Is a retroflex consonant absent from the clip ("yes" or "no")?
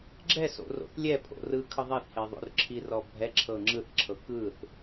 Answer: yes